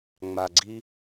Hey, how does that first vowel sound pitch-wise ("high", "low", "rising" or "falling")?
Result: low